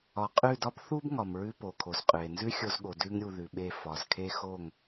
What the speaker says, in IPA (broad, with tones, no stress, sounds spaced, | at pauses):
ɒ˨ qʼ ʉ˦˨ d ɒ˦ b θ u˦ b ŋ ɒ˨ m ɹ ʉ˦ p o˨ kʰ o˨ z qʼ ʉ˨ e̯ n z ʉ˦ xʲ o˧ z ɠ o˨ d ʉ˦ ŋ ɾʲ u˧ ð ʉ˨ ɓ e˦˨ f ɒ˨ z kʰ e˦ x o˦˨ ŋ